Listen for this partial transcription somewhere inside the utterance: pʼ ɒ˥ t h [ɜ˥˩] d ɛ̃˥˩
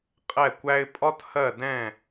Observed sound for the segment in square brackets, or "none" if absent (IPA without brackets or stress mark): ɜ˥˩